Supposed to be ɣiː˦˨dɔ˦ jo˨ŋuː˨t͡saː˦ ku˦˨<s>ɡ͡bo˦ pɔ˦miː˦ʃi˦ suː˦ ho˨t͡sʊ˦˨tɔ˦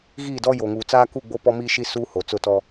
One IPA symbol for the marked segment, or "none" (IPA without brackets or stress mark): none